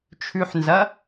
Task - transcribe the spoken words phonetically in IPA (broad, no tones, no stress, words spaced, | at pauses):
t͡ʃʰʉħnzɐ